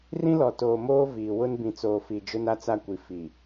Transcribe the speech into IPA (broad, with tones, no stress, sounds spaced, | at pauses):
r ĩ˦ l ɔ˨ t oː˨ m oː˦ v iː˨ w ʊ˦ n b ĩ˨ t͡s oː˨ f i˨ d͡ʒ ʊ˦ n a˦ t͡s a˦ kʷ i˨ f i˨